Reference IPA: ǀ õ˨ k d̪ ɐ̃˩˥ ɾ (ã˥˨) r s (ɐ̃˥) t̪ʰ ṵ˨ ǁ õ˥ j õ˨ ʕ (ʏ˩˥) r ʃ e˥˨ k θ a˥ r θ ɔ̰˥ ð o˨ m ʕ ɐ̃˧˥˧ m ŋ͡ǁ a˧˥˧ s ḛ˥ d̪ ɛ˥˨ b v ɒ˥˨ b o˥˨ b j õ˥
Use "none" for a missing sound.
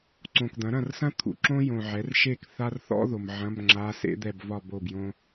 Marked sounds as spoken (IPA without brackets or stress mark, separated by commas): ɐ̃˥˨, ɐ̃˥, ɛ˩˥